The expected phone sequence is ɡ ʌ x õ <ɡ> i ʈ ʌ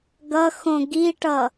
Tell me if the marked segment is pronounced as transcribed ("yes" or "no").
yes